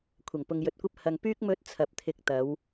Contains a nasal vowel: no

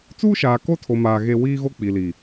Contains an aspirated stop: yes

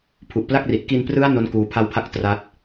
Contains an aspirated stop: yes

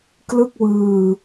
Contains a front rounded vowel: no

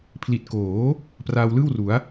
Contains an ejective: no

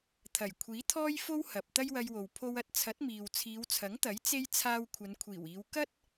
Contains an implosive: no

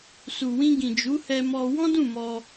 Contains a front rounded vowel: no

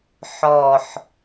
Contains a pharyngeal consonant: yes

